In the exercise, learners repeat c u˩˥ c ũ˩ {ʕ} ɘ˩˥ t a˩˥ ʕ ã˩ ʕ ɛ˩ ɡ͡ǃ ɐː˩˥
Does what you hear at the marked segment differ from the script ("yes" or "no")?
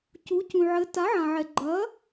no